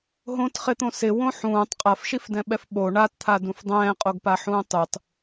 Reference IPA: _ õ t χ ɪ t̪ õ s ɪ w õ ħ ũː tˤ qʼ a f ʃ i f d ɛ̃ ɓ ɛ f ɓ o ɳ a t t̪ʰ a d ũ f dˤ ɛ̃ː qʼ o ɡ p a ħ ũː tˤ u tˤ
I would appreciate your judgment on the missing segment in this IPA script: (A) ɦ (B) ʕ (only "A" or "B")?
A